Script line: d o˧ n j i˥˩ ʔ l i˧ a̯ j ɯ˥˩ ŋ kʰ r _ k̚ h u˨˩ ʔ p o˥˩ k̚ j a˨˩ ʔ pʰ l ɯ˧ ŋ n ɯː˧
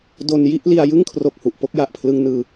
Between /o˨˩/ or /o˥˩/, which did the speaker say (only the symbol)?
o˨˩